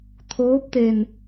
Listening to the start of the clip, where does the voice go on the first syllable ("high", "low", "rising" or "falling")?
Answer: rising